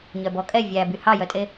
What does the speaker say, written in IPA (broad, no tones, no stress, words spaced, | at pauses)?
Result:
ɲœbɔkʼɛ vʲæby hɑjœtʼe